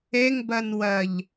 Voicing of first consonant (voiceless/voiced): voiced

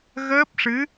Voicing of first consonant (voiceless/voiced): voiced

